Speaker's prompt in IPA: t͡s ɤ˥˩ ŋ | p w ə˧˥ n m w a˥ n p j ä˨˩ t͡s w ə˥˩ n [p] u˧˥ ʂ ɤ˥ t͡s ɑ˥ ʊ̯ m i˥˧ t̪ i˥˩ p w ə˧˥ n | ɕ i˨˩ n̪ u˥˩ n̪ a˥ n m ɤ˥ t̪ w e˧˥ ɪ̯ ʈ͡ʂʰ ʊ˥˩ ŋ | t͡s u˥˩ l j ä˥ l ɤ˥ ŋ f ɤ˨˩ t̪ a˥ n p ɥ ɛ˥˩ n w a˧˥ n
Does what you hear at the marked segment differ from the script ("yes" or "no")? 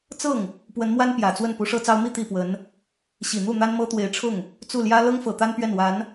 no